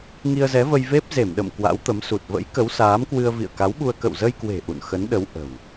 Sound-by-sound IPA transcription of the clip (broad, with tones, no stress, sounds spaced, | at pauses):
ŋ i˧ ə̯ z ɛ˨˦ v ə˧ j v e˦˥ p̚ z e˧˩ m ɗ ə̰˧˨ m k w a̰˧˥ w t̪ ə˨˦ m s u˨˩ t̚ v ə̰˧˥ j k ə˨˦ w s aː˨˦ m k w ɨ˧ ə̯ v ḭ˧˨ ə̯ k a˨˦ w ɓ u˧ ə̯ k ə̰˧˨ w z ə˧ j k w e̤˨˩ ʔ ṵ˧˨ n x ə˨˦ n ɗ ə˨˦ w ʔ ə̤˨˩ w